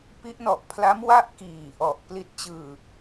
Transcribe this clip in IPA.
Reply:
pi˦˥ʔnɔ˨˩ʔpʰla˦˥m wa˥˩ʔkiː˨˩ ʔɔ˨˩ʔ pli˦˥t̚t͡ɕɯː˧

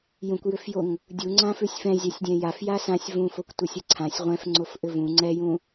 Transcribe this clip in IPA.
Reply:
jũkʷjʏfjoŋ | dʲuŋ͡ǀãfʉsʲ fɛ̃zʲæsʲdʲɛ̃ jafja sãsʲ vũfokʷtʷəsʲə ǀʰãsʲ ʁʷɛ̃fŋ͡ǀofʔʏ vũ ŋ͡ǀɛjũ

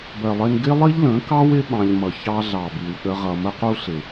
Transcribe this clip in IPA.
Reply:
bɜ˨lˠɪ˧n ɡɪ˦lˠi˦ʎlə̃˨˦kɑ˦w ɪ˦ ɓɑ̃˧ʎ mʌ˨çɑ˦ɮɑ˨bi˨w ɗə˦ʁʌ˧ mə˦qu˦ɬɪ˨

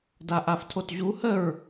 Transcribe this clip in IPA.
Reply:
daʔaftʰotʑu həɹ

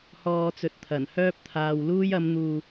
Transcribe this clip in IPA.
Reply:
hɔː˨t͡sɵ˨t̚t̪ʰɐ˨˩n hœː˧p̚t̪ʰaː˨w luː˧jɐ˨˧m n̪uː˨

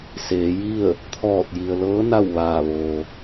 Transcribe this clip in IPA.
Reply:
seː˩˧ji˥˨ə̯ | t̪ʰɔː˧˩t̚ji˩ə̯lɤː˧˥ na˥˨wʋaː˧˩ ʋo˩

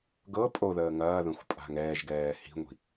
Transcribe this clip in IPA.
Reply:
ɡɤ pʼoðəː ŋɐːðə̃xʷpʼa̤ŋ ɛːʒɡɛː hi̤ŋʷi̤

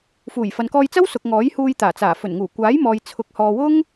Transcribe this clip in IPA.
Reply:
fuː˨˩jfɐ˨nkɔː˧j t͡sɐ˥wsʊ˨k̚ ŋɔː˨˥jhuː˧j t̪aː˨˩t͡saː˨˩ fɵ˨˩nŋuː˨˩kʷaː˨˥jmɔː˨j t͡sʰʊ˨˥k̚ hɔː˨wʊ˥ŋ

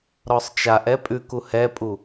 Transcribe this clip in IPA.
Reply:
ɾɔsˤt͡ʃaʔɛ pʼʉku hɛpʼu

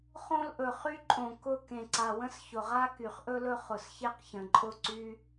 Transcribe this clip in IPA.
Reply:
χõ˧lʔɵ˩ χy˧ǃʼõ˩ kʊ˧˩ kẽ˩ǀa˩wə̃˧s çʊ˩ʁa˧ ky˩χʔɵ˧lɵ˧ χʊ˩sçe˧qçə̃˩ǃʼʊ˧˩ ǀy˧

